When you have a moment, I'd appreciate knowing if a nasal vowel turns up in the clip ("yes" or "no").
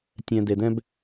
yes